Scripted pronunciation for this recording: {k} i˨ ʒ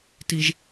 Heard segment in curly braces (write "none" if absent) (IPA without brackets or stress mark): t